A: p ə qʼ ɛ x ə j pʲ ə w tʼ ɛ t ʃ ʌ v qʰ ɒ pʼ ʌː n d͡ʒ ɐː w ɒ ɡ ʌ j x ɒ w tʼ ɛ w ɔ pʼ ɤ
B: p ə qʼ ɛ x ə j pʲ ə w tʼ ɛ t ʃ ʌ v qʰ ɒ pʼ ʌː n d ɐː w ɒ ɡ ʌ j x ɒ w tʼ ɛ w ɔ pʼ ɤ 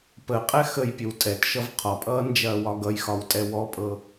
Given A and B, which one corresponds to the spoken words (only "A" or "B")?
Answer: A